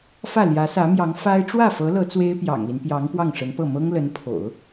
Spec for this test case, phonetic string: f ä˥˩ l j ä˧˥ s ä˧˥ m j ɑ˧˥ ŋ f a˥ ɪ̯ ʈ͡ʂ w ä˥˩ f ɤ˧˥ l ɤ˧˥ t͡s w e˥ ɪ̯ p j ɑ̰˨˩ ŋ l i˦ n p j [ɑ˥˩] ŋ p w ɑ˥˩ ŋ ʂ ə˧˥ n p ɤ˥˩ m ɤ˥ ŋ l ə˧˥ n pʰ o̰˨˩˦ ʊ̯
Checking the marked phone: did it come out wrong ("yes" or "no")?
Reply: yes